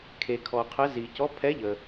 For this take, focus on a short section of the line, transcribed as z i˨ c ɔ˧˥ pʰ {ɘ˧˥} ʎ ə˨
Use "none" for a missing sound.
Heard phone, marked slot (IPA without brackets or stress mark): ɛ˧˥